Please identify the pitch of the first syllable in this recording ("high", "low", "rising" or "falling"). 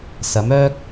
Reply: rising